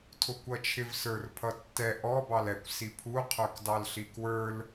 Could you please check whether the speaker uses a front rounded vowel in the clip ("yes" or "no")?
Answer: no